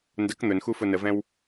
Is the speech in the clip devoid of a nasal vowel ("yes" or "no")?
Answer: no